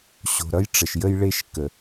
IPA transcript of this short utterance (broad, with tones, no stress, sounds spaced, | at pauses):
ɕ o̤˨ ɾ ʌ˦ j ʈ͡ʂ ə˨ ʃ j ə˦ j ɭ e˦ ʃ k ə˨